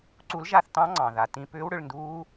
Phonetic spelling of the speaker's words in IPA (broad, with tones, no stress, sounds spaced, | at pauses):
ǀ u˨˥ l ʒ a˦˨ θ t ɑ̃˦˥ ŋ͡ǀ ɑ̃˩ ð a˩ t ĩ˦˨ p ʏː˦˥ w ɽ ʏ˦˨ ɭ n d uː˦˥